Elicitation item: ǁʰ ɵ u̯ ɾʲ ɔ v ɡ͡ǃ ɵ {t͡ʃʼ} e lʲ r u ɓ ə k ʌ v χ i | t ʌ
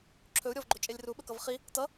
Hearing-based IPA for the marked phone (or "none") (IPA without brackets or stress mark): t͡ʃʼ